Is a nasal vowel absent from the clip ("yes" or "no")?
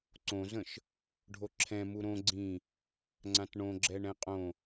no